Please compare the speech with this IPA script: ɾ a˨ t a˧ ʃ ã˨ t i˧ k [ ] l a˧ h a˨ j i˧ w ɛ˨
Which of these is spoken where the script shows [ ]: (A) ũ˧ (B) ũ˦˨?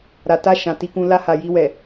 A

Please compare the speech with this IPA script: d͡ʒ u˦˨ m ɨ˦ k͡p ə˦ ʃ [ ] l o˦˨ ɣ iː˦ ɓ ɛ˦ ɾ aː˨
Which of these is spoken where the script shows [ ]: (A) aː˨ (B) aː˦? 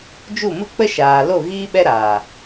A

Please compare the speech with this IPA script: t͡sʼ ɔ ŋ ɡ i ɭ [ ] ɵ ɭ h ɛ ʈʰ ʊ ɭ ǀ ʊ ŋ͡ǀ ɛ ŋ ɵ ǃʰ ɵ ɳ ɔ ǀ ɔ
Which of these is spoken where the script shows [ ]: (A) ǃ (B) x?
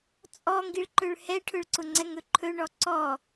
A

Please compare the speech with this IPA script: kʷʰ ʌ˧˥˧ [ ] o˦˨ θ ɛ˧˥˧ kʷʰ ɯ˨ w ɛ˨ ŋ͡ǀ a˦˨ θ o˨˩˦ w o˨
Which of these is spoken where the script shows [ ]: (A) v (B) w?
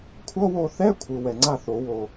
B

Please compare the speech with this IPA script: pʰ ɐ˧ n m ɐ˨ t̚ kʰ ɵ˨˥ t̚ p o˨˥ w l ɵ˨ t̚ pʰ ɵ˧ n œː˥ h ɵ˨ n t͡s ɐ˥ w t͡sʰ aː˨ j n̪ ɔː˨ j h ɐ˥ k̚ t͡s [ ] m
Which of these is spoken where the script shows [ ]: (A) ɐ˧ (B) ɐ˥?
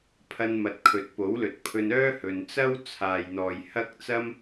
B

